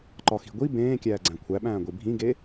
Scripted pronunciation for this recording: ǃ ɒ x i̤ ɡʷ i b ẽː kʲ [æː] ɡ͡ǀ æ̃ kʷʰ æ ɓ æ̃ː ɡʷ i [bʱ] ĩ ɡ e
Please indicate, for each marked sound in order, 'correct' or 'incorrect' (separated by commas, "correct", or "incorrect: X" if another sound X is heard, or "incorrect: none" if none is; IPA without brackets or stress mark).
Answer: correct, correct